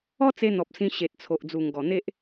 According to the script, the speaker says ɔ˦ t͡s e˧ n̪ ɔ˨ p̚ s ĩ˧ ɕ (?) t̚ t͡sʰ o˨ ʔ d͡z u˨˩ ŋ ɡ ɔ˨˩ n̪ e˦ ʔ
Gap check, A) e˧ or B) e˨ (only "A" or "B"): B